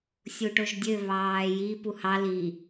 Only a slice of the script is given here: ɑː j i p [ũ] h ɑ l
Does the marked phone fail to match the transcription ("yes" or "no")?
yes